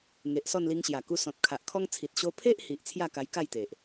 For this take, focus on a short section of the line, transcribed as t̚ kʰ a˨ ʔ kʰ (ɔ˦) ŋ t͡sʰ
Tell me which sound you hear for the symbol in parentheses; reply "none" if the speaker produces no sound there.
ɔ˦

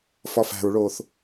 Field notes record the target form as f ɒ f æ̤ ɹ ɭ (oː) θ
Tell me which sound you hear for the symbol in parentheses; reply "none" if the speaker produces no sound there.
oː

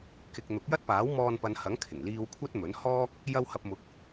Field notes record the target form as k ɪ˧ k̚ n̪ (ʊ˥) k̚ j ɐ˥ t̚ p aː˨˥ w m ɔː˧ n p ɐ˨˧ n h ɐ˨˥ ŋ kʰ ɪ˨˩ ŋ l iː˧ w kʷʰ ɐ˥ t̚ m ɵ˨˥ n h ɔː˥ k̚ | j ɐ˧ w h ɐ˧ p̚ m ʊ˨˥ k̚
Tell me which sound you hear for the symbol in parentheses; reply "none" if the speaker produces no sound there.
ʊ˨˥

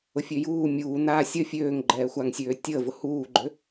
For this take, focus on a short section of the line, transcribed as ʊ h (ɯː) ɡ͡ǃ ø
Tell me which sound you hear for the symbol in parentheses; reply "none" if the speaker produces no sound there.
uː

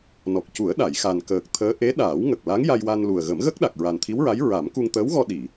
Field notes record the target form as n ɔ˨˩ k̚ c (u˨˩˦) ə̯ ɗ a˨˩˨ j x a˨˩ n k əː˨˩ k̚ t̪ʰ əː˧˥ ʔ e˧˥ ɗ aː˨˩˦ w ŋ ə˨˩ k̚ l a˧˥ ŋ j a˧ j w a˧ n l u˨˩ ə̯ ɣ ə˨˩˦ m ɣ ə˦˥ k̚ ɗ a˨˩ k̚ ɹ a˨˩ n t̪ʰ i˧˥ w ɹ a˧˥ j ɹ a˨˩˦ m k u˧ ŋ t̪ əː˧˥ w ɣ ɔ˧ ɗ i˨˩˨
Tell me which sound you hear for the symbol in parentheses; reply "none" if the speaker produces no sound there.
u˨˩˦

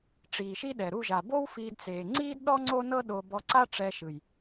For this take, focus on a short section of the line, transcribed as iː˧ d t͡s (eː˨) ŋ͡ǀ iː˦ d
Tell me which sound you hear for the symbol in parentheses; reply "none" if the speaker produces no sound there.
eː˨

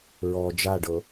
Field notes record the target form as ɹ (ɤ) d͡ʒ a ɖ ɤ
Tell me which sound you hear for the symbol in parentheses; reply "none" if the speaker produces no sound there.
ɔ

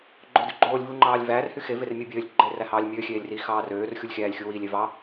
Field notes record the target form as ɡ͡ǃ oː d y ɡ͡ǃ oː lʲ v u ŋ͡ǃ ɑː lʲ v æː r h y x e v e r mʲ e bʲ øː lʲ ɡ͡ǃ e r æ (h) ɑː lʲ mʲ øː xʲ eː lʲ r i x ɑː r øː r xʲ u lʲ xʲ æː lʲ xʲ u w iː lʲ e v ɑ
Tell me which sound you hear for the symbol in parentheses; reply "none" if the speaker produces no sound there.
h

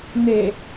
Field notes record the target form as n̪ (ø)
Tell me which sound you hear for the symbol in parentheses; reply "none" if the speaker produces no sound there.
e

